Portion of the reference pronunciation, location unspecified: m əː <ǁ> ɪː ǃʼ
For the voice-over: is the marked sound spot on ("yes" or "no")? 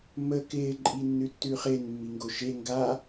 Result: no